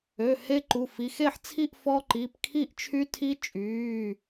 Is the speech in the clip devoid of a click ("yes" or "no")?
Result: no